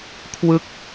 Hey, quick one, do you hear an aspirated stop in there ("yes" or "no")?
yes